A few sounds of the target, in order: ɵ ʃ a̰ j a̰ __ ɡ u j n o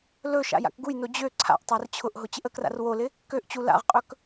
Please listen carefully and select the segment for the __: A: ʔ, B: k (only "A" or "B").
B